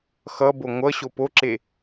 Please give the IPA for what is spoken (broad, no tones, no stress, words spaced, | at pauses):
xʌbo ŋʷʌ ɕopoǁe